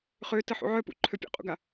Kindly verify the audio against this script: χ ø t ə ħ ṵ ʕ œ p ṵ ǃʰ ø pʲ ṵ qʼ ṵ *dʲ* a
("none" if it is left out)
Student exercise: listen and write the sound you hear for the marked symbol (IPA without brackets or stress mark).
ɡ